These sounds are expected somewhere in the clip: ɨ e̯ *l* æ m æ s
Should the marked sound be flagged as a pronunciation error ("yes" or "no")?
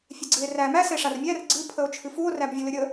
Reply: yes